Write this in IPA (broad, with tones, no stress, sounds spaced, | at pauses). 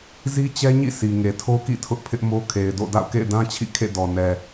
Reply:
z i˦ t͡ɕ ɛ˦ ɲ ḭ˦˨ sʰ i˨ ŋ e˨ tʰ o˦ k ḭ˦˨ tʰ ʊ˦ ʔ pʰ ɪ˦ ʔ m o˦ kʰ e˨ ɪ̯ d o̰˦˨ d a̰˦˨ ʊ̯ k ḛ˦˨ ɪ̯ d ã˦ t͡ɕʰ ḭ˦˨ kʰ ḛ˦˨ d ɔ˨ n ɛ˨